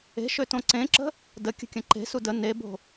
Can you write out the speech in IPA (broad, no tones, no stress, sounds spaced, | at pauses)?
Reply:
e̤ ʃ ø t õ ǀ ẽ ǁ ə̤ | d ə kʲ ə̤ kʲ ɐ̃ ǃ e̤ s u d ə n e b o̤